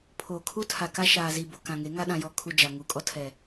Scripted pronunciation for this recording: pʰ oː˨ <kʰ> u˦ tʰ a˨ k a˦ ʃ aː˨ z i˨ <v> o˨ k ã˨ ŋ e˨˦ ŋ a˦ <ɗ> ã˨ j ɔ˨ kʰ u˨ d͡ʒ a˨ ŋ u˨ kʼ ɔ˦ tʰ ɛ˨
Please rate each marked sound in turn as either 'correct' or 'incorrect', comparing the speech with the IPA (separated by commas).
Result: correct, incorrect, correct